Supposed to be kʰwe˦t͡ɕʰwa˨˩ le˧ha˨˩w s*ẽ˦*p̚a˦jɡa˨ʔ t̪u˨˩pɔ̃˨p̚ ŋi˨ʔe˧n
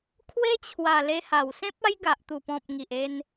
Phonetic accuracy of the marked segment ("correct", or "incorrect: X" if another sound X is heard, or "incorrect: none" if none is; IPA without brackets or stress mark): correct